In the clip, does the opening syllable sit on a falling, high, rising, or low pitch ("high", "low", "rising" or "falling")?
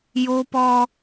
high